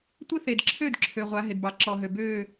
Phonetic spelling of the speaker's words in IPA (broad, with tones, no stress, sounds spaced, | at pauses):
tʷ ɪ˦ θ e˨ d ǁʰ ø˦˨ d ǁʰ ø˨ ʁʷ a˨˦ ɦ ɪ˨ d b ɑ˨ ǁ ɔ˨ ɦ ø˨ b ø˦˨